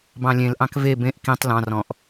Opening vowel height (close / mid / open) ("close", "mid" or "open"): open